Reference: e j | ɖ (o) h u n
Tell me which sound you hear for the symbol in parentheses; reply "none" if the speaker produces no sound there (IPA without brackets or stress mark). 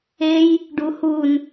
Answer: u